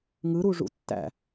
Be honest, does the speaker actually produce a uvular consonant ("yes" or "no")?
no